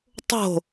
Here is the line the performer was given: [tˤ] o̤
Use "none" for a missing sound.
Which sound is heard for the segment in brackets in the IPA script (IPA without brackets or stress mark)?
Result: tˤ